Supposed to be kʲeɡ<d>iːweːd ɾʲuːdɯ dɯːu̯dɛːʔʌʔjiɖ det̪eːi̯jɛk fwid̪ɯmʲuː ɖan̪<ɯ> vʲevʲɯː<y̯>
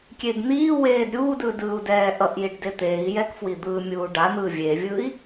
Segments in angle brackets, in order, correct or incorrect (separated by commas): incorrect, incorrect, incorrect